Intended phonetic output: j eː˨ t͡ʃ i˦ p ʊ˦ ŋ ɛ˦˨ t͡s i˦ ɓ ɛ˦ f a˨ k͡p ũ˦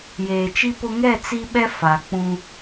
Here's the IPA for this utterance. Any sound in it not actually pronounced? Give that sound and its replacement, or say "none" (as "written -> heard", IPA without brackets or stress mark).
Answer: none